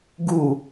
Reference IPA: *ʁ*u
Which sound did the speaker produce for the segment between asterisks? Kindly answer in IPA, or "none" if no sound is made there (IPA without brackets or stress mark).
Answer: ɡ